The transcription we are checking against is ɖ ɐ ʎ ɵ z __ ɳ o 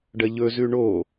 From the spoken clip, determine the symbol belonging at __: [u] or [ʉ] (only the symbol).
ʉ